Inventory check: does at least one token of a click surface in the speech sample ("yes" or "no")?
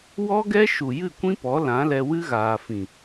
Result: no